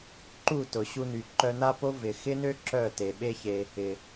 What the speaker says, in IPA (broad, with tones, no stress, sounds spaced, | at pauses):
ǃ u˦˨ t ʊ˨ ɕ u˧ n y˨ ǃ œ˧ n a˦ p o˦ v ɪ˨ x ɪ˦ n ø˦ ǁ œ˦˨ t e˨ ɓ e˦ ç e˧ | ɪ˨